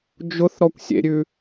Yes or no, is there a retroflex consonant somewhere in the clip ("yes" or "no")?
no